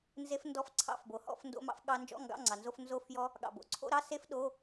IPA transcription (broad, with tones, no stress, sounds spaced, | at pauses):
n z e˦˥ f n d ɔ˥˨ f ǀʰ ɑ̰˧˥˧ f b o˩ h ɔ̰˧˥˧ f n d o̰˦˥ m ɑ̰˦˥ f ɠ ɑ˦˥ n d͡ʒ ɔ̰˧˥˧ ŋ ɡ ɑ̰˧˥˧ ŋ͡ǀ ɑ˩ n z o˧˥˧ f n z o˦˥ f j ɔ˦˥ | ɠ ɑ̰˩ b o̰˩ ǀʰ o̰˧˥˧ ɾ ɑ˧˥˧ s e˦˥ f ɗ o˧˥˧